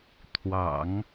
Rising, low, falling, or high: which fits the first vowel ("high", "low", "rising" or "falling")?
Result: low